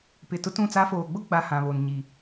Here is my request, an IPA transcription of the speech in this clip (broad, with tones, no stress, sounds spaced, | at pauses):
p ɪ˨ t ʊ˦ t ũ˦˨ t͡s a˦ f oː˨ ɡ͡b ʊ˦ ɡ͡b a˨ h ã˨ β o˨ n ɲ i˨